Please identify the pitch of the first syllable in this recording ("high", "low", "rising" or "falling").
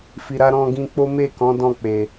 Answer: low